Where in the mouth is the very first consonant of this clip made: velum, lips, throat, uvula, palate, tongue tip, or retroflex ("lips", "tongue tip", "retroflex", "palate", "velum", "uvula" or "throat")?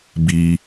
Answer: lips